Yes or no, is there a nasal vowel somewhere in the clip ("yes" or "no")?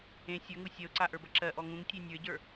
yes